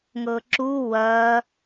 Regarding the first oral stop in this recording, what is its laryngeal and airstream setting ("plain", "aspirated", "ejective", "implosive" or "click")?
click